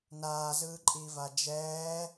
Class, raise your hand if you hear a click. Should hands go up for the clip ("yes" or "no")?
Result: yes